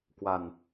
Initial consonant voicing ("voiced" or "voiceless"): voiceless